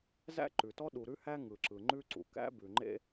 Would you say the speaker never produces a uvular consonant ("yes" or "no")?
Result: yes